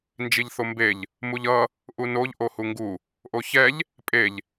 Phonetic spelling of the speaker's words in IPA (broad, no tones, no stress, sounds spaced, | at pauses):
n d͡ʒ i ʎ θ o m b e ʎ | m u ʎ ʌ | ʔ u n o ʎ ʔ o h u ŋ ɡ u | ʔ o ç ɛ ʎ | pʼ e ʎ